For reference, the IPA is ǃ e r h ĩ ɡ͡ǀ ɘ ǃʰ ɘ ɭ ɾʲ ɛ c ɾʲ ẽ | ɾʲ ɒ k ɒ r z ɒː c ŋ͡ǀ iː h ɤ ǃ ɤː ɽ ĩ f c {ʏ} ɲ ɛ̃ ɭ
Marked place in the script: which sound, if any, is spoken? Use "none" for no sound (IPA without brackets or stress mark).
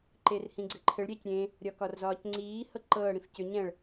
ʏ